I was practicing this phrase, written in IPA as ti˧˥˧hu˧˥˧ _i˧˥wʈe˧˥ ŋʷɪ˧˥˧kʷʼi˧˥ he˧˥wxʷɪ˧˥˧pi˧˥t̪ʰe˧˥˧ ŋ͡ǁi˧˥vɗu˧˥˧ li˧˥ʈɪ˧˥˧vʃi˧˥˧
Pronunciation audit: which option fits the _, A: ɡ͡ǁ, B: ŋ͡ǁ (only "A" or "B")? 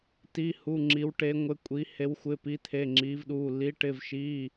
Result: B